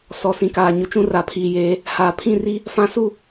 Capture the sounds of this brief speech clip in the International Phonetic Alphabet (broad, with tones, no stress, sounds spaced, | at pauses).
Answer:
s ɔ˨ s ĩ˨ k aː˨ ɲ ʊ˨ t͡ʃ ũ˦ r a˨ pʰ iː˨ j eː˨˦ | h aː˨ pʰ ĩ˦˨ r i˦ | f ã˦ s u˦˨